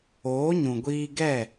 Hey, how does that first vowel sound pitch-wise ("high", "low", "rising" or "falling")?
rising